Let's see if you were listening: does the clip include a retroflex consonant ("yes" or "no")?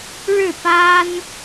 yes